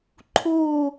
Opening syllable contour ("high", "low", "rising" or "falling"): falling